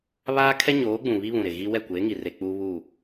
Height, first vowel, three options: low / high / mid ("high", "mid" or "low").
low